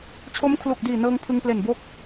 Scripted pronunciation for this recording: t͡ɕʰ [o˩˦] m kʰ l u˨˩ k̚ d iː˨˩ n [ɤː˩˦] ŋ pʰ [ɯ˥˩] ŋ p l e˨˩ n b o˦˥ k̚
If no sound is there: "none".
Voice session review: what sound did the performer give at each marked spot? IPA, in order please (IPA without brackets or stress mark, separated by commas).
o˦˥, ɤː˧, ɯ˧